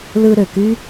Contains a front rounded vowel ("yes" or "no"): yes